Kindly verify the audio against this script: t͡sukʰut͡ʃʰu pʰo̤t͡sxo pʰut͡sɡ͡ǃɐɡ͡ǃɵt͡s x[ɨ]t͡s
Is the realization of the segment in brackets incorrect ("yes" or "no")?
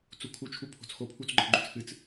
no